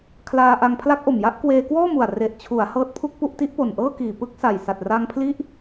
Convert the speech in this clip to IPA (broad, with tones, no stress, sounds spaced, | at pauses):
kʰ l aː˧ ʔ a˧ ŋ pʰ l a˦˥ k̚ ʔ o˨˩ m j a˥˩ ʔ k w eː˧ k w ɔː˥˩ m u˨˩ a̯ r e˨˩ ʔ t͡ɕʰ u˩˦ a̯ h ɤː˦˥ t̚ pʰ u˥˩ k̚ p u˥˩ ʔ t i˦˥ ʔ p o˨˩ n ʔ ɤː˥˩ k iː˨˩ p ɯ˥˩ k̚ s a˨˩ j s a˨˩ t̚ r a˧ ŋ pʰ l i˦˥ ʔ